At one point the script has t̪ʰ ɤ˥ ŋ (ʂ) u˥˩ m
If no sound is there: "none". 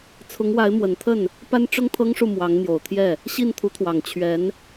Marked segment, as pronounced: ʂ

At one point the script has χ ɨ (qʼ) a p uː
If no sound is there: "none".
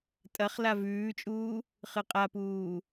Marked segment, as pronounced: qʼ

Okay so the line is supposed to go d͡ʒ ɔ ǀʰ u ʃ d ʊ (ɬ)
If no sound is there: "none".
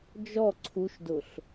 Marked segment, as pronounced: ɬ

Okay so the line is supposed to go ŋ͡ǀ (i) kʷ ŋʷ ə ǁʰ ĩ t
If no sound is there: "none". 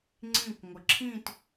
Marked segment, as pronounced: ĩ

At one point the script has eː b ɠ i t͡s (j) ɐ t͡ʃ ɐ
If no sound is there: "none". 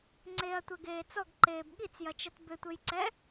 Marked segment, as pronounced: j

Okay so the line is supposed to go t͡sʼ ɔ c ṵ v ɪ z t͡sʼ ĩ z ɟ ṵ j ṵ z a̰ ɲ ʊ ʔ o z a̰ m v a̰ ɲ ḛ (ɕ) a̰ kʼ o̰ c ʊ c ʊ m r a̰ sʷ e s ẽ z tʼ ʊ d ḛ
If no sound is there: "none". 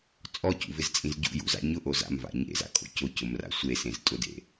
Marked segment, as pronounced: z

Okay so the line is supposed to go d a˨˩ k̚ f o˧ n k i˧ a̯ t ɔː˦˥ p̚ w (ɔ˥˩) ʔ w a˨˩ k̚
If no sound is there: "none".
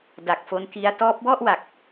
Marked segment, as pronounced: ɔ˥˩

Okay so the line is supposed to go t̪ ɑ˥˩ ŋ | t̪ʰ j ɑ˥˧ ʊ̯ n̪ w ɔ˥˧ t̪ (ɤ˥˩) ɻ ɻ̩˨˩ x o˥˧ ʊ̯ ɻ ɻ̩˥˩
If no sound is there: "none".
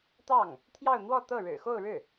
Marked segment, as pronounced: ɤ˥˩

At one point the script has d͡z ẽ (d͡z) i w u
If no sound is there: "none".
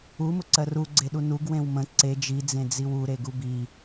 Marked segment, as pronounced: d͡z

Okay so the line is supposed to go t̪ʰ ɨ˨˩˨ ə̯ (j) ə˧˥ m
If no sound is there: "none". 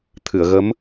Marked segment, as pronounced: ɣ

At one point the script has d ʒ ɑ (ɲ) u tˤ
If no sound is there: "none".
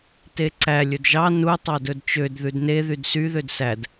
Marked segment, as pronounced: n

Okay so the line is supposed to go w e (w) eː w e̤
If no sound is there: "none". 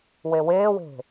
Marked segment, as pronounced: w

